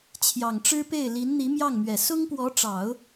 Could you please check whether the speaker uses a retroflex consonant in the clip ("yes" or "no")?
yes